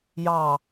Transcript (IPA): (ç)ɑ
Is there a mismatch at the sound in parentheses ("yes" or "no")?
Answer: yes